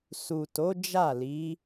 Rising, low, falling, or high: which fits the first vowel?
low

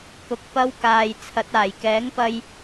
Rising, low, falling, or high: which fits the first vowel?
rising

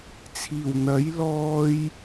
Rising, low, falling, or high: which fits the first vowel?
low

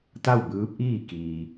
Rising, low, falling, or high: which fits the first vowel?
falling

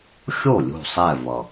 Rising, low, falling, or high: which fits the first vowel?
falling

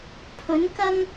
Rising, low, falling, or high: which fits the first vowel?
rising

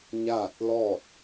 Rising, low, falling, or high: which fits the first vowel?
falling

